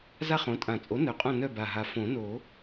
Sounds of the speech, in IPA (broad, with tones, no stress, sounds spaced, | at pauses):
z a˥˨ χ õ˩˥ tʼ ã˨˩˦ t͡sʼ o˩˥ n œ˩˥ qʼ õ˧˩ n œ˧˩ b a˧˩ ɦ a˧ f õ˨˩˦ n o˨˩˦